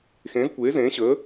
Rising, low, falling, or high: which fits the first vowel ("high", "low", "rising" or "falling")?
rising